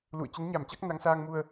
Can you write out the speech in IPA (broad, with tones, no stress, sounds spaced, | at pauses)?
l ṵ˧˨ ə̯ t͡ɕ ə˨˦ n ɲ a˧˩ m t͡ɕ a˦˥ k̚ n a˨˦ ŋ s aː˧ ŋ m u˧ ə̯